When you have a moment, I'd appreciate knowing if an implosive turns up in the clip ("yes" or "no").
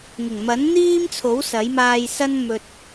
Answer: no